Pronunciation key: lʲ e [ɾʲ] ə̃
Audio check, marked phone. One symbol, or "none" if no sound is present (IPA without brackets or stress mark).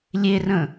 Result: r